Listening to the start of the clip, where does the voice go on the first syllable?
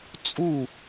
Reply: falling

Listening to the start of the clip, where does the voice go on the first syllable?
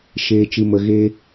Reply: low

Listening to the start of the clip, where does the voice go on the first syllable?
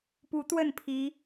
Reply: rising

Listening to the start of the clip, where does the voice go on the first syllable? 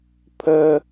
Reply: high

